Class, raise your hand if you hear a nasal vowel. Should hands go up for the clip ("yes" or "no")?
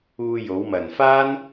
no